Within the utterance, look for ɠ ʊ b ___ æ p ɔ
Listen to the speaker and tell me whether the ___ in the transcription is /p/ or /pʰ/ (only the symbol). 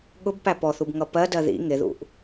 p